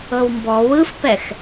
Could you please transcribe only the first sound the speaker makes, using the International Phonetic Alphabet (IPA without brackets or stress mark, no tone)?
ɤ